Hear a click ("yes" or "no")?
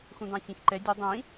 yes